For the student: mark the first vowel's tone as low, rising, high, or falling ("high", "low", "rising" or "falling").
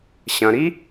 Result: low